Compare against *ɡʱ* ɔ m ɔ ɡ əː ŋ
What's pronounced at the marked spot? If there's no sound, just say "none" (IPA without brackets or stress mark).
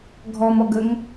ɡʱ